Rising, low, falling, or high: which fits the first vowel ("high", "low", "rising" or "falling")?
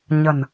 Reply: low